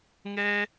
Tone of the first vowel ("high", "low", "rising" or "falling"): high